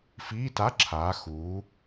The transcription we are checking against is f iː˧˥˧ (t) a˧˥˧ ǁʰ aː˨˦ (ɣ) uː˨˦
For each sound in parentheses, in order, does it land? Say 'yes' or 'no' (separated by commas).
yes, no